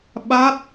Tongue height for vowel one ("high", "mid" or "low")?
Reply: low